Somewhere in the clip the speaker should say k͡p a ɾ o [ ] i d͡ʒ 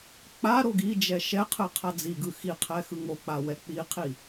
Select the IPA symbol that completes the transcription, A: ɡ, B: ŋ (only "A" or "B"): A